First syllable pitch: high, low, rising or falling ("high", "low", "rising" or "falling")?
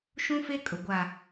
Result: high